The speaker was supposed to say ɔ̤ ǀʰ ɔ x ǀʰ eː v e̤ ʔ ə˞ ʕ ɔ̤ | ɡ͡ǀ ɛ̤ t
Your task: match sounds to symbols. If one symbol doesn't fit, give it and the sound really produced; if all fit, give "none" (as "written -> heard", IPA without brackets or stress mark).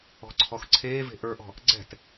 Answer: ʕ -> ʔ